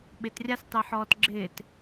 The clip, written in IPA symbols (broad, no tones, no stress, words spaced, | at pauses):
ɓɪtrʲastˤe ħɔːtɡ͡ǁɪːt